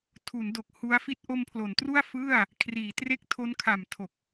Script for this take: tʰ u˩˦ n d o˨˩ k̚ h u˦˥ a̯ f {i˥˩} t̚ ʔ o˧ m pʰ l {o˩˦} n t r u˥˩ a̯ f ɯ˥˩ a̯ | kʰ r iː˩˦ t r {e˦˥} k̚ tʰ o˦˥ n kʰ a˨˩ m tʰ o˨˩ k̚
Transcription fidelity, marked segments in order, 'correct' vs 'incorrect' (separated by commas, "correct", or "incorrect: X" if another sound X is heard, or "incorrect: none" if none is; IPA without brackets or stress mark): correct, correct, incorrect: e˥˩